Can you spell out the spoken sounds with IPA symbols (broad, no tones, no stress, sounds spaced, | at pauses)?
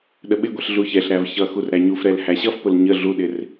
ɗ ə ɓ ɪ ɡʷ ɛ ɬ ɮ u ç ɛ ɬ ɾ æ v ç ʌ x u r ɾ æ ɲ u f ɾ ɛ l h æ ɕ ʌ f p ʊ l ɲ ə ɮ u ɗ ɪ r